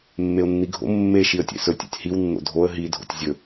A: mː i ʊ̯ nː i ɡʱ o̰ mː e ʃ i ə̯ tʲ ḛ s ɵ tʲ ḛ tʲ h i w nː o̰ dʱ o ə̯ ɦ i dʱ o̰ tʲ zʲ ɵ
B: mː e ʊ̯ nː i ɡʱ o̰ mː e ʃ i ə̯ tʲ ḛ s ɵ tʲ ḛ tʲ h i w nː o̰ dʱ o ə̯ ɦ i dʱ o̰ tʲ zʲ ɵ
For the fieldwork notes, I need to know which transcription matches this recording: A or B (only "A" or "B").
B